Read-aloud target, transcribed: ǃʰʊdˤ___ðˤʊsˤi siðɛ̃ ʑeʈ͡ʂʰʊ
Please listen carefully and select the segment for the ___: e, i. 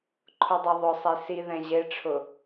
e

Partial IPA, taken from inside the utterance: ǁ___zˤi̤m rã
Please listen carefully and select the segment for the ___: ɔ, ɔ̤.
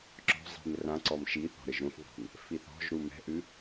ɔ̤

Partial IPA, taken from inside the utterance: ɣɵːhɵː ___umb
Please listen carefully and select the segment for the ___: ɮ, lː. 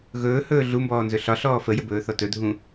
ɮ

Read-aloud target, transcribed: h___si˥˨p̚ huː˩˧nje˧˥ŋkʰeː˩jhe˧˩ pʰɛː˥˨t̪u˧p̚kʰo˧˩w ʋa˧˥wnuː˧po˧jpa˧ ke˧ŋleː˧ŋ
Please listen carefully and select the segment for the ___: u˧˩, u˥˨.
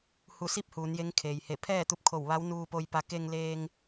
u˧˩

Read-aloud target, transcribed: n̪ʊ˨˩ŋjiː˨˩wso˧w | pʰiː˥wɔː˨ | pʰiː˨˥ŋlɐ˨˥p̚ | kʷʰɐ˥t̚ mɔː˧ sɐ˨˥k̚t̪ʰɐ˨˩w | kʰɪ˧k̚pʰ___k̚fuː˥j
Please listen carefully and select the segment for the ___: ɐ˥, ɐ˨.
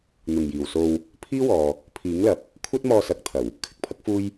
ɐ˥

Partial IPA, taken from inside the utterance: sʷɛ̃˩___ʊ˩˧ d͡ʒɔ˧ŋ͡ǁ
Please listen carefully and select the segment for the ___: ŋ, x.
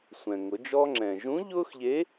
ŋ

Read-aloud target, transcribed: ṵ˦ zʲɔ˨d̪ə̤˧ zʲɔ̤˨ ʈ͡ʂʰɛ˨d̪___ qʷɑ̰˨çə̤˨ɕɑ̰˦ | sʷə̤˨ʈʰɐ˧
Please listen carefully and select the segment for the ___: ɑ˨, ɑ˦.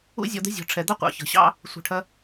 ɑ˦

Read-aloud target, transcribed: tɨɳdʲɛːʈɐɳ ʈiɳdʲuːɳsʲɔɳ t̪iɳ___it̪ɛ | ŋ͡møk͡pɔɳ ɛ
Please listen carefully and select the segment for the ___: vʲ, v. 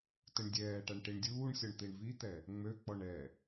v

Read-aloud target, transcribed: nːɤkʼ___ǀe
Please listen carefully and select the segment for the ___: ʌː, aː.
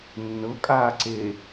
aː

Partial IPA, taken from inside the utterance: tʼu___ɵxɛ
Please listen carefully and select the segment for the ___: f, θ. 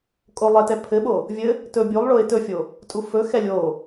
f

